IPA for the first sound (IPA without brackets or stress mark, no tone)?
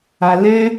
a